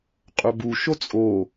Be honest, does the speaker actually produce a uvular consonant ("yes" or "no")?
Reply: yes